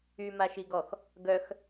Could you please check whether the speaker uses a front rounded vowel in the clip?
yes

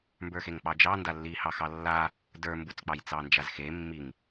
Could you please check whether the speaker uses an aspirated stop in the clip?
no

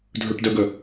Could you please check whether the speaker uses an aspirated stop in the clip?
no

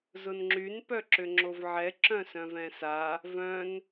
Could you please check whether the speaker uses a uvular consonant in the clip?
no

